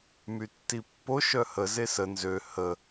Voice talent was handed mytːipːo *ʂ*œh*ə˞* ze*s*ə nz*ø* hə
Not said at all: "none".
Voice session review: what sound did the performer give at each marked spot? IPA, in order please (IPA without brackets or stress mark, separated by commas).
ʃ, ə, s, ø